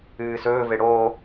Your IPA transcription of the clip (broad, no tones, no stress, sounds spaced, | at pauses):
ɨː s ɵː v e ɽ oː